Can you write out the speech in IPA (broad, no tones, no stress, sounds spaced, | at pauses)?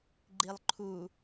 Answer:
ɡ͡ǃ i lˠ ǃʰ u